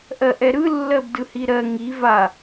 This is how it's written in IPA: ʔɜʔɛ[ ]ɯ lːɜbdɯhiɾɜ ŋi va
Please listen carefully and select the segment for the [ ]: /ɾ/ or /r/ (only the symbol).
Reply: ɾ